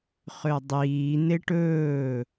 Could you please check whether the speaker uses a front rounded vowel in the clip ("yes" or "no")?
yes